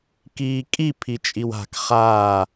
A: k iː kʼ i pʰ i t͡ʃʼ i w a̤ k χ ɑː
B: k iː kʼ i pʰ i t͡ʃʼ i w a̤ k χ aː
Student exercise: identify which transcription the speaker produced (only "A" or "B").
B